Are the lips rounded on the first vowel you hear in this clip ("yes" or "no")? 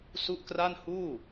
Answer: yes